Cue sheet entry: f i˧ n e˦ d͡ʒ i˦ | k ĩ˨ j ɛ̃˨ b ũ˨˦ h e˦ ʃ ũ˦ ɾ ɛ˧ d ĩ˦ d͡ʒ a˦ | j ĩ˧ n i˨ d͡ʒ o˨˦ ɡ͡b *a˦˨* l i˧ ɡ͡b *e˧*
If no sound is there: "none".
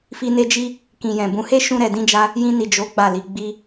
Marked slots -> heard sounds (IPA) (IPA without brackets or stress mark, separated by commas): a˦˨, i˧